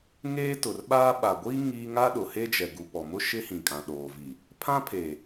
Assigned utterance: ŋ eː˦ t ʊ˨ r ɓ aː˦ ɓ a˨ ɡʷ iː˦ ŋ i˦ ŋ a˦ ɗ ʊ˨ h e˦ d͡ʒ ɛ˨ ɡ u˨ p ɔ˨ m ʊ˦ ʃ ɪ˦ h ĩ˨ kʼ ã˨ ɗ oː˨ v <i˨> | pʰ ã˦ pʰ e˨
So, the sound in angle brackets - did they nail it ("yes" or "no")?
yes